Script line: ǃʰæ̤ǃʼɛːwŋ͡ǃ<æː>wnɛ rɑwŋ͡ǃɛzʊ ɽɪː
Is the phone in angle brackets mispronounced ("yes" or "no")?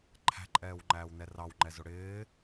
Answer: no